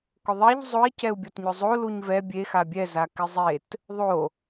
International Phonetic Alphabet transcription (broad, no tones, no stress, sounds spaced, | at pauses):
k ʊ ðˤ ɛ ʎ zˤ ʊ i̯ c ɛ u̯ bʲ ɔ t ɲ ʊ zˤ o l u ɲ v ɛ bʲ e x a bʲ ɛ z a k ɪ zˤ e t | ðˤ o